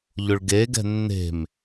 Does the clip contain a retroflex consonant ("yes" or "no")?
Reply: yes